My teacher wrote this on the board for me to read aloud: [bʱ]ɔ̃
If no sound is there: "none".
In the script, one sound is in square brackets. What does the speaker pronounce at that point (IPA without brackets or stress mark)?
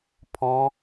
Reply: pʰ